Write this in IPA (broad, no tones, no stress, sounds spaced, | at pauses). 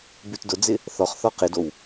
b ʉ t d ʊ d͡z ɪ | θ ɔ χ θ ɔ q ɪ d o w